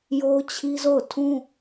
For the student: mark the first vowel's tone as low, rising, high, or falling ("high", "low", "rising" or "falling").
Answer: high